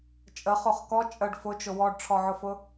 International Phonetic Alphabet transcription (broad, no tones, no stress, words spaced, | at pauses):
t͡ʃʼəχoχ kɔ t͡ʃʼəɖ fʊt͡ʃʊ wɔɖʈ͡ʂʰɔʕʊfʊ